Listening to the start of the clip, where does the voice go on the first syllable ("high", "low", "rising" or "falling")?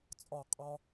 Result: falling